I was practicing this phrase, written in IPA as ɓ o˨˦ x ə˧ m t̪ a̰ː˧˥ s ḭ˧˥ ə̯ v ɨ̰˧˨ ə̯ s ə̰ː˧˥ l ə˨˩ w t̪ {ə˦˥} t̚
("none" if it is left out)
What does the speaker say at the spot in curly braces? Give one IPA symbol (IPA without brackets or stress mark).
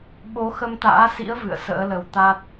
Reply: a˦˥